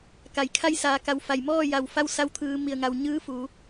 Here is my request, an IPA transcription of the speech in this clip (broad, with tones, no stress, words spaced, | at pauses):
ka˩˧jkʰa˥˨j saː˩˧ka˩˧w fa˩jmɔː˥˨ja˧˩w fa˥˨wsa˧wt̪ʰɯː˩˧ mi˩ə̯ŋa˩wɲɯː˧˥ fuː˩˧